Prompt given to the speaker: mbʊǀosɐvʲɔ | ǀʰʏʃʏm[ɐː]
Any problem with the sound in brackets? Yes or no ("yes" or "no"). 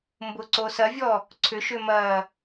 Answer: no